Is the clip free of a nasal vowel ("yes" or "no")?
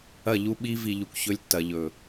yes